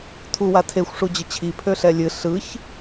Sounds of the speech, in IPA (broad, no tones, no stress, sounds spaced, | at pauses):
tʰ u w a tʰ e xʷ ʂ u d͡ʑ ɘ t͡ɕʰ i pʰ ø ɬ ɛ lʲ ɨ ɬ ɯ ç